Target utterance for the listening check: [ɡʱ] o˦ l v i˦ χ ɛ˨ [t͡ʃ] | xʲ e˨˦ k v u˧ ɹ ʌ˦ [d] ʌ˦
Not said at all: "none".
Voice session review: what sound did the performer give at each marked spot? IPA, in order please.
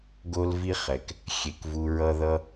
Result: ɡ, k, ð

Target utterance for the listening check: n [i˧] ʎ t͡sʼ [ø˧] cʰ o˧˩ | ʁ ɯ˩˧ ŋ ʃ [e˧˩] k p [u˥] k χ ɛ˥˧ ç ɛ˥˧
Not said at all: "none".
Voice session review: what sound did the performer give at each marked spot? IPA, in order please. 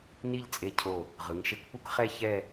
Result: i˥˧, e˧, e˧, u˥

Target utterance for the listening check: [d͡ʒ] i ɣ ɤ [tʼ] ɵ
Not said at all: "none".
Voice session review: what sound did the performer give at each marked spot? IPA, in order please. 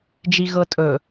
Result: d͡ʒ, tʼ

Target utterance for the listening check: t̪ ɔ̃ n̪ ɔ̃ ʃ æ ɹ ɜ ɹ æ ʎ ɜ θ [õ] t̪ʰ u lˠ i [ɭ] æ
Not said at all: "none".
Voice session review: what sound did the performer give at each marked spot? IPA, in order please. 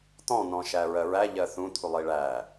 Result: ũ, ɭ

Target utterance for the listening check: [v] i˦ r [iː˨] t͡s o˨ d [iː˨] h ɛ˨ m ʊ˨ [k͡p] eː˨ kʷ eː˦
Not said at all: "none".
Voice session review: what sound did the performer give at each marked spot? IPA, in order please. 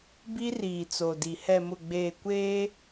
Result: b, iː˨, i˨, ɡ͡b

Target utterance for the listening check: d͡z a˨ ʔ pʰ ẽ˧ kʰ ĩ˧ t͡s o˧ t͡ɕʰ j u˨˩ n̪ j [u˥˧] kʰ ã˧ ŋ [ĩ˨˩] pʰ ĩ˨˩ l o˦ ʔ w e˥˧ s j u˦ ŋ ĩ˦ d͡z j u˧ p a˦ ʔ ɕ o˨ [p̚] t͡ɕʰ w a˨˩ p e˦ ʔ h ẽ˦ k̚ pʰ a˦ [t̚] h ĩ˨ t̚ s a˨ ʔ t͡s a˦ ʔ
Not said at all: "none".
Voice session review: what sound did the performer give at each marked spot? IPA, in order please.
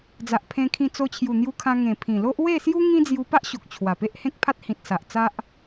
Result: u˧, ẽ˨˩, k̚, t̚

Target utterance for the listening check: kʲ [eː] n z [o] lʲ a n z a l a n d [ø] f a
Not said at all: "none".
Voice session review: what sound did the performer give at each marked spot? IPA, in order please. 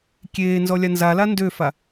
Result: eː, ɔ, ø

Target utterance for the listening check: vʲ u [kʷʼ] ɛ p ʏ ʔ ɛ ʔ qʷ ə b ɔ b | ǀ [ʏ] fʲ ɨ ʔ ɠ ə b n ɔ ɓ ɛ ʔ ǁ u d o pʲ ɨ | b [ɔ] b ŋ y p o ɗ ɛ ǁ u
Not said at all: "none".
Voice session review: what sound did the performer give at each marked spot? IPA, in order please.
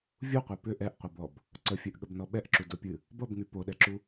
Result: qʷ, ə, ʌ

